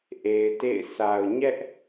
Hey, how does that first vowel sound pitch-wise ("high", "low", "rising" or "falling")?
low